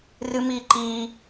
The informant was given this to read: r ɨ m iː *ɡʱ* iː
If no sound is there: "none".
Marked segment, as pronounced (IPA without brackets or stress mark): ǃ